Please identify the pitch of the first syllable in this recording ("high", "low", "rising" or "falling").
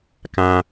high